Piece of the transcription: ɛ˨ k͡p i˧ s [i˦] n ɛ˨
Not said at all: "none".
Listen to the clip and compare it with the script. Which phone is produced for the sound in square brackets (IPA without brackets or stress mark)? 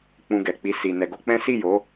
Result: i˨